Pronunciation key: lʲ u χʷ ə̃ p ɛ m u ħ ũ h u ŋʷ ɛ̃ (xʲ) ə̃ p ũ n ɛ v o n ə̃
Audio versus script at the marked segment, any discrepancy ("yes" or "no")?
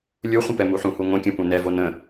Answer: yes